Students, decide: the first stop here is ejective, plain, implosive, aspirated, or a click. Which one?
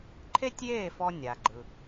click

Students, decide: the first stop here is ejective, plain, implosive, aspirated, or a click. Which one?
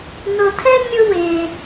aspirated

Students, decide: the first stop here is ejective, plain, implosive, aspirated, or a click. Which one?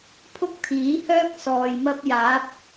aspirated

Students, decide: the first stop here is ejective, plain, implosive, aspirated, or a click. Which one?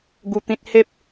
plain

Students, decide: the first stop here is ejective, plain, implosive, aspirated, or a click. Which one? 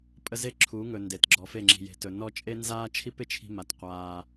ejective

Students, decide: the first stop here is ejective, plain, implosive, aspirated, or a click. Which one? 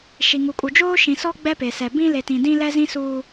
ejective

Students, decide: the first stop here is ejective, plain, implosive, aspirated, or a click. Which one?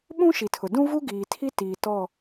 implosive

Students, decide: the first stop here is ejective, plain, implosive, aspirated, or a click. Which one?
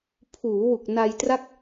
aspirated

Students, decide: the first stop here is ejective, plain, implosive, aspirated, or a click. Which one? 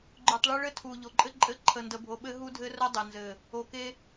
click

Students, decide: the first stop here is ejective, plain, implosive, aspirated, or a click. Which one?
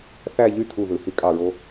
aspirated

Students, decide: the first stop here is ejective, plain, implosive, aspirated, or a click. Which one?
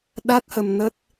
implosive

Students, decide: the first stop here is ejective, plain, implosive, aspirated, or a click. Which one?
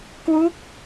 plain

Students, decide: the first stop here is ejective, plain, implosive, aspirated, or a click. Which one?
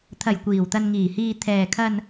aspirated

